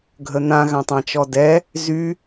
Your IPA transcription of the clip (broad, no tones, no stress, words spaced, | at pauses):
ɡʱən̪ã ɣãtˤãt͡ʃɔdɛ | zy